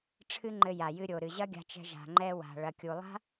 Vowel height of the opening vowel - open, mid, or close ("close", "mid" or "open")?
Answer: close